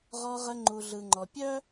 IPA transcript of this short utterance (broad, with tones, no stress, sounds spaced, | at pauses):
ʁ ɔ˧ ʁ ə˧ ŋ͡ǃ u˨ ɮ ɯ˨ ŋ͡ǃ ɔ˨ pʲ œ˦